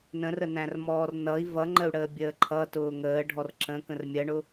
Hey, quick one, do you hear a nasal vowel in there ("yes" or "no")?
yes